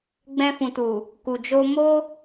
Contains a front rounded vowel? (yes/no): no